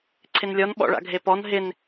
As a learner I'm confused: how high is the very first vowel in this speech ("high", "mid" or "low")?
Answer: high